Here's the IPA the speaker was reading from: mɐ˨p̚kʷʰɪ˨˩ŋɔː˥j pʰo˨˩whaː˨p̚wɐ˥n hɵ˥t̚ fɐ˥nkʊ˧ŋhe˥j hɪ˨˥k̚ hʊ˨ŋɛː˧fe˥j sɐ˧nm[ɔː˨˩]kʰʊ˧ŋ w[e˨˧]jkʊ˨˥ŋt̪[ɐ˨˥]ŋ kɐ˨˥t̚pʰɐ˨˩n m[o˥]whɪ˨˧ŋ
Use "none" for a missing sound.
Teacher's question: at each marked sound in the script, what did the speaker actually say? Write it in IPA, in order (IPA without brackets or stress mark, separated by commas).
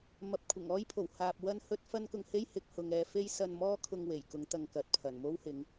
ɔː˥, e˨˩, ɐ˨, o˥